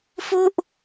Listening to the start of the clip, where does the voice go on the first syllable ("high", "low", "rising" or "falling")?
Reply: falling